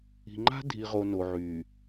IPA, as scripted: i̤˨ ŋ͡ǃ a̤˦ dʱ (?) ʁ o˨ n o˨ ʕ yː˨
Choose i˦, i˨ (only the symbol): i˨